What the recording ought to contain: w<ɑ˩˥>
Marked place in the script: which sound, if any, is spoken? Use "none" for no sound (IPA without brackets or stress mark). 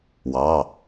ɑ˩˧˩